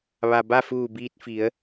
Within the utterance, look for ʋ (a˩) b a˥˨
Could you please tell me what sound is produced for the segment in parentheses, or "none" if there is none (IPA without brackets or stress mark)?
a˩